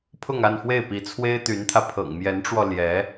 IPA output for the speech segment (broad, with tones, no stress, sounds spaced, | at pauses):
pʰ ʊ˥˧ ŋ a˥˧ n f w e˥˩ ɪ̯ p i˧˥ t͡sʰ w e˥ ɪ̯ t̪ y˧˥ n t̪ʰ ä˧ pʰ ɤ̰˨˩ ŋ m j ɛ˧˥ n ʈ͡ʂ w ɔ˧ l j ɛ˧˥